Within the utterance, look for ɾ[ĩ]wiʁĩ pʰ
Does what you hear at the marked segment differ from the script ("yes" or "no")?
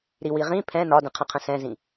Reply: yes